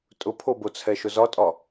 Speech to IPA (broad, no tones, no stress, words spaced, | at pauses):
tʼʊpʰobot͡sʰɛ ʃʊzɒtʼɒ